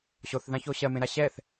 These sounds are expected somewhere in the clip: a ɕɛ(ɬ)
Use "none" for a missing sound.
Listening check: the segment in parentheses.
θ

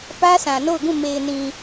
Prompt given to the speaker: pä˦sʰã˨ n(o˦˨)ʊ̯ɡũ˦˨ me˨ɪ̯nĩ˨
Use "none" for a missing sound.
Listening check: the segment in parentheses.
o˦˨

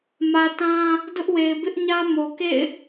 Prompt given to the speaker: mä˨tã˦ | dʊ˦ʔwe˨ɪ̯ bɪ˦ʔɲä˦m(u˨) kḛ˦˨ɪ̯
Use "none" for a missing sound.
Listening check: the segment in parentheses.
o˨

